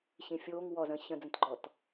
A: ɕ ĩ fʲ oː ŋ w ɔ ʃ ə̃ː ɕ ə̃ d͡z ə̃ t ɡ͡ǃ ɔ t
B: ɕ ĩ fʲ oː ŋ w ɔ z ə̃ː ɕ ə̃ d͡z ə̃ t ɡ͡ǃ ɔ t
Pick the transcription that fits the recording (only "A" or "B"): B